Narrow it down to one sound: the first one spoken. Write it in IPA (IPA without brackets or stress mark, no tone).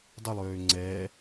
dˤ